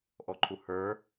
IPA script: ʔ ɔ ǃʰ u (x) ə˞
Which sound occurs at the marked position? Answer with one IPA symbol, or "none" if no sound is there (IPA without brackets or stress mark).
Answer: h